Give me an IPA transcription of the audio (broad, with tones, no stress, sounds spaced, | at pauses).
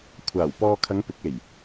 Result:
kʷʰ aː˨˩ w p ɔː˧ kʰ ɐ˨˧ ŋ p ɪ˨˥ k̚ e˨˩ j